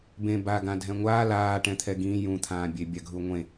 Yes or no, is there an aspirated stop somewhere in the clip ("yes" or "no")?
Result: yes